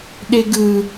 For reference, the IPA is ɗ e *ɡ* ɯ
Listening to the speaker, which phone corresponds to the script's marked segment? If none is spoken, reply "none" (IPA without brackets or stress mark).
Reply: ɡ